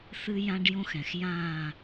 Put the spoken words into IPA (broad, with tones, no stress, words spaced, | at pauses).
θɨ˦jã˦ɖ jõ˦xɛ̃˨x jãː˦˨